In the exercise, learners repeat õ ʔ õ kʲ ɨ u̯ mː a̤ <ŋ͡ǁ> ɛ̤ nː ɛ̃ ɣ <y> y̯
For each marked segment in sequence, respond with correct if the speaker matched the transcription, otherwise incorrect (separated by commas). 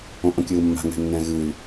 incorrect, incorrect